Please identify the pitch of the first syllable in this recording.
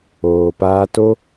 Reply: low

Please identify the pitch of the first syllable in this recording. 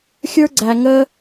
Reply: high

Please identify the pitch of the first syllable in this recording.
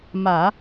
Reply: low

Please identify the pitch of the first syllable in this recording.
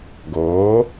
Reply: rising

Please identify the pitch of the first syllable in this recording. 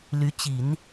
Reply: rising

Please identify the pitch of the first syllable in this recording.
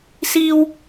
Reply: high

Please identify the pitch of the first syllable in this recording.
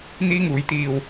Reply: high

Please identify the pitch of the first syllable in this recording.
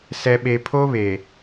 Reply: low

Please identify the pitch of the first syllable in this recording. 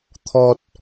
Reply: low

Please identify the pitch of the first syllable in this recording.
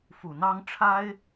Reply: low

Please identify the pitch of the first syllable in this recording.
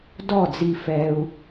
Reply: falling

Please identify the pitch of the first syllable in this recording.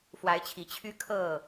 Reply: rising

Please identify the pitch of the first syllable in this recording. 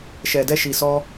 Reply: low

